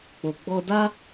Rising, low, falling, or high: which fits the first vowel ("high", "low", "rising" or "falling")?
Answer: low